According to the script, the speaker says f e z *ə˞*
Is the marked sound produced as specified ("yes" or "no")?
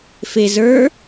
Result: yes